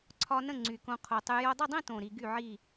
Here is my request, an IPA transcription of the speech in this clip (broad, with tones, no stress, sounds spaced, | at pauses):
ǀʰ ɒ˧ n ə̃˥˨ ŋ͡ǀ y˨˩ k õ˧ qʰ o˨˩ tˤ y˧ j o˧ dˤ ə˥˨ dˤ ĩ˥˨ t õ˨˩ ɾ i˧ ɡ y˥˨ ʕ i˥˨